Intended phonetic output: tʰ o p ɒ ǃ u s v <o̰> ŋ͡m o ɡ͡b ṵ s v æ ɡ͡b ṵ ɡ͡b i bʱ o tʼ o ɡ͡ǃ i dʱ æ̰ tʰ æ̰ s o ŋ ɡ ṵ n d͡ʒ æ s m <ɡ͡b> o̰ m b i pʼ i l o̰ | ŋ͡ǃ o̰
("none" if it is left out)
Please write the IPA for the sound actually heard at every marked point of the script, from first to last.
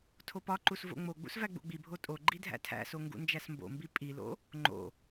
o̰, b

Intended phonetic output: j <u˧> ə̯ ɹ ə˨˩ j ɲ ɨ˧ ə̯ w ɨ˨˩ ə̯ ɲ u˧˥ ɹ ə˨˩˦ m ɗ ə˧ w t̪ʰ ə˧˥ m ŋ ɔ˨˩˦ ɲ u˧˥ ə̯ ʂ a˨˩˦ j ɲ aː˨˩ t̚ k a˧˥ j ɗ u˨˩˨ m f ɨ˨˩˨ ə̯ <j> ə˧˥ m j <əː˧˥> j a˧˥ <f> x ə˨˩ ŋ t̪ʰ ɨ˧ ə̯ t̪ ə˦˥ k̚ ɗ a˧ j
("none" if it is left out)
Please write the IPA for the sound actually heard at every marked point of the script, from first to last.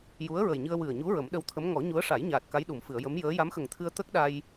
u˧˥, j, əː˧˥, m

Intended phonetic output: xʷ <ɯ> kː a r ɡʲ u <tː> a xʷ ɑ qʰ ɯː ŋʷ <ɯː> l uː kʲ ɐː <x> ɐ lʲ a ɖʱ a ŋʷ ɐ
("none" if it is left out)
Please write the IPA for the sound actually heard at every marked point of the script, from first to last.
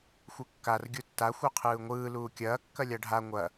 ɯ, tː, ɯː, kː

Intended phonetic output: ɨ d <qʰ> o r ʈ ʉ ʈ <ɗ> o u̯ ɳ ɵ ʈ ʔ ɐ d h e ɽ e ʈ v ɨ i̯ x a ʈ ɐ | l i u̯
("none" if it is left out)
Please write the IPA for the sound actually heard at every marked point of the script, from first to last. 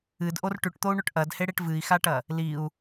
ʔ, t̪

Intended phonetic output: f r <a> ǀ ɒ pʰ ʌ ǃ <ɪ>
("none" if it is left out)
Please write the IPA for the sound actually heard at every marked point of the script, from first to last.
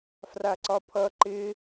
a, ɪ

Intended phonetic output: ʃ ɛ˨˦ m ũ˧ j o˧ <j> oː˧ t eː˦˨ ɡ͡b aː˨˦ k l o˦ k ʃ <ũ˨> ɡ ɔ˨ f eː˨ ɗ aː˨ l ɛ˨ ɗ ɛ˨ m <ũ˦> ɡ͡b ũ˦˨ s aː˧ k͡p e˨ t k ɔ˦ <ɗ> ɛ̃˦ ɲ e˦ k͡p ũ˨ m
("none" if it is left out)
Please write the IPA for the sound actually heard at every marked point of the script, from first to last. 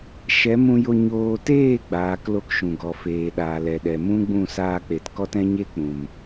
ɲ, ũ˨, ũ˦, t

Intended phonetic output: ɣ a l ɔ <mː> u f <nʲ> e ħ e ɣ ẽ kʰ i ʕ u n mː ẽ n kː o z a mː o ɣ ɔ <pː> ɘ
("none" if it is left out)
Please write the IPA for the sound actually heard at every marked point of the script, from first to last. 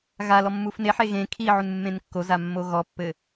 mː, n, pː

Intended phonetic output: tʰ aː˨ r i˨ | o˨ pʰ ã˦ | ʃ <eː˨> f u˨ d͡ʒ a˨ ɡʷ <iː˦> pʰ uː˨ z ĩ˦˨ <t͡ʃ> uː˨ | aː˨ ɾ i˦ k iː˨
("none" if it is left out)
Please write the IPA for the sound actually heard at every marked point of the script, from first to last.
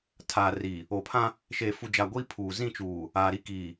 eː˨, iː˦, t͡ʃ

